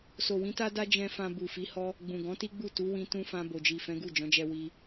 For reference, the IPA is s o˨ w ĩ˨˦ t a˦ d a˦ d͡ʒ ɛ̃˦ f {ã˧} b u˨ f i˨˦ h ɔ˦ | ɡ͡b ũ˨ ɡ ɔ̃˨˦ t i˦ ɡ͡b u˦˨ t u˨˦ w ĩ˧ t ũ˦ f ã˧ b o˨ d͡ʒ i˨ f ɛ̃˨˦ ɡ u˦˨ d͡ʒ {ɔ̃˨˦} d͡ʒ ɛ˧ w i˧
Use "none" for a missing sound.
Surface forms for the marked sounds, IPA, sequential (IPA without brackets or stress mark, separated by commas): ã˧, ɔ̃˨˦